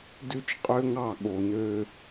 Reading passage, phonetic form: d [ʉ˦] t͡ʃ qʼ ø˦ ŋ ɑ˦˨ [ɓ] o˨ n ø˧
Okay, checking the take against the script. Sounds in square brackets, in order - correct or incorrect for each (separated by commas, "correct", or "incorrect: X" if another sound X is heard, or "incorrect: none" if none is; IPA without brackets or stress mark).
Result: correct, incorrect: ɠ